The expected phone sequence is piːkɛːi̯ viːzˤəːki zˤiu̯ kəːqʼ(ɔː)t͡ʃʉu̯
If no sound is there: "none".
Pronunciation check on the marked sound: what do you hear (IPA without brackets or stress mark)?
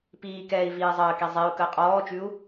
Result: ɔː